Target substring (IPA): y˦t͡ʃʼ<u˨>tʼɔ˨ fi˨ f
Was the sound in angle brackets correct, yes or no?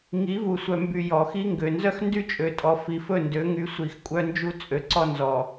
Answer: no